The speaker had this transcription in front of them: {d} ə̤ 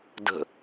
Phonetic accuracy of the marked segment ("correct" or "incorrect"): correct